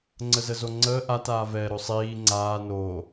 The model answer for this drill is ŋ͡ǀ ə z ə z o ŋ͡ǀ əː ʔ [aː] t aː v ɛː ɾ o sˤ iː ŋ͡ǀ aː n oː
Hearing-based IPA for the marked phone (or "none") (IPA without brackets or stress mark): a